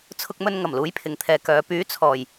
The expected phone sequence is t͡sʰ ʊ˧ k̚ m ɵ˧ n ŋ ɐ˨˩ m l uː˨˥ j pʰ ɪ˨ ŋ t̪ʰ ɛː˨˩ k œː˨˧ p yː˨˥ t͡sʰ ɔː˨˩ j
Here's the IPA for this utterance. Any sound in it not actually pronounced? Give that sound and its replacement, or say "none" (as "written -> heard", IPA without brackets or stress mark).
ɛː˨˩ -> ɛː˨